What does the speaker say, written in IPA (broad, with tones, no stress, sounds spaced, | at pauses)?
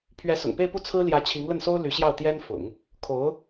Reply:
pʰ ɥ ɛ˧˥ s ʊ̰˨˩ ŋ p e˥˧ ɪ̯ p u˥˩ t͡sʰ ɹ̩˥ l j ä˧˥ t͡ɕʰ i˧˥ ŋ l ə˥˩ n s o˥ ʊ̯ l y˧˥ ɕ j ɑ˥˩ ʊ̯ t̪ j ɛ˥ n f ʊ̰˨˩˦ ŋ | kʰ o˧˥ ʊ̯